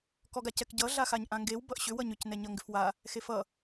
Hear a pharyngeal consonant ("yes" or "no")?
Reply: no